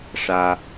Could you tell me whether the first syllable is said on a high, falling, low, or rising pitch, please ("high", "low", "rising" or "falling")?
high